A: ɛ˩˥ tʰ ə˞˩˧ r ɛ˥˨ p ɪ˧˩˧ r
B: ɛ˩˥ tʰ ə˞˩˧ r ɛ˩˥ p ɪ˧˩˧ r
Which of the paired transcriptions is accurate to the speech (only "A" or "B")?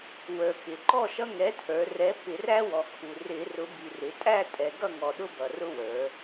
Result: B